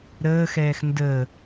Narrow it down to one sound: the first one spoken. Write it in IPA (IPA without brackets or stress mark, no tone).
ɾ